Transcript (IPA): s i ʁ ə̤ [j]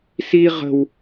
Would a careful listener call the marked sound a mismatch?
yes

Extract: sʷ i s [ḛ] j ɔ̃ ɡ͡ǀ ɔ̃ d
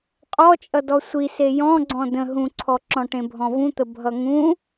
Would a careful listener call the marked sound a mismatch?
yes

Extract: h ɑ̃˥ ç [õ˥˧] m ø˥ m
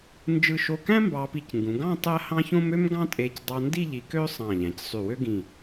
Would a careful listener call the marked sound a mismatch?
yes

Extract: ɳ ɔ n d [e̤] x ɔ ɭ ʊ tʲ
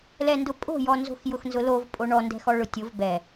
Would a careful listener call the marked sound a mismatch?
yes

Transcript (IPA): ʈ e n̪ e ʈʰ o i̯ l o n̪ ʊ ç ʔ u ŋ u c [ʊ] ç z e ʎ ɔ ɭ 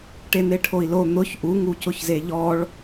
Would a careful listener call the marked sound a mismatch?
no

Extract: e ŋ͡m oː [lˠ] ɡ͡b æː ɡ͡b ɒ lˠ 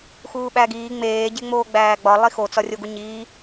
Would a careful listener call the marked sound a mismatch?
yes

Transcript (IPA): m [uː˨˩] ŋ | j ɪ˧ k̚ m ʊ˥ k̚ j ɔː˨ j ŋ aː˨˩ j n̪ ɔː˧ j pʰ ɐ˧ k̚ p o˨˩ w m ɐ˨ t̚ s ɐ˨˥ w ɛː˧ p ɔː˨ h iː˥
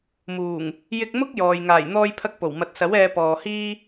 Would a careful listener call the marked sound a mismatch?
no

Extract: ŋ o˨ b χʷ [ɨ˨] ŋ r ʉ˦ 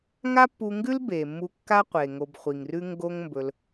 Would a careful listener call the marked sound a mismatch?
yes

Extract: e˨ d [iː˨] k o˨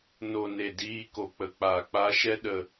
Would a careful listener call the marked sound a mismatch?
yes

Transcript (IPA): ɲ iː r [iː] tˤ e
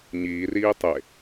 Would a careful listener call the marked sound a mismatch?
no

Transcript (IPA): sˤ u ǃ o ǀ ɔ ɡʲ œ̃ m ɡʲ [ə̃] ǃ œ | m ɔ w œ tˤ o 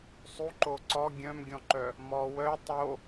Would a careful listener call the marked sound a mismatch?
yes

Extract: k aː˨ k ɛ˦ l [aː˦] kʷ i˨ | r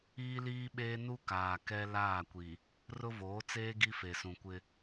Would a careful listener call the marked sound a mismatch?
yes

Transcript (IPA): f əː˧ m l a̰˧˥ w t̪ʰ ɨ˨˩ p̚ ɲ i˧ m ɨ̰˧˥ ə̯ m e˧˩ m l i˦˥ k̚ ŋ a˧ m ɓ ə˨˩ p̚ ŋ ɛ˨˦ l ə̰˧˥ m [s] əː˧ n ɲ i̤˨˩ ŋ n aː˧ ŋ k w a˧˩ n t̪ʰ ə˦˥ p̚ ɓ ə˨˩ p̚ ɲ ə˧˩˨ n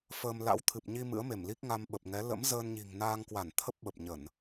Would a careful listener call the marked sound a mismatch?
yes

